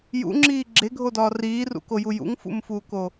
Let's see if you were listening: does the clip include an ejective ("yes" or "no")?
no